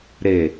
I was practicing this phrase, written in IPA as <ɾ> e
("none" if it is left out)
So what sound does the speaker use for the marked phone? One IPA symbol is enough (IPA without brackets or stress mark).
ɾ